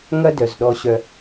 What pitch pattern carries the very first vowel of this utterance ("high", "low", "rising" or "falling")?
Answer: high